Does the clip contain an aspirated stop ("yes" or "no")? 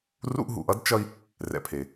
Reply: yes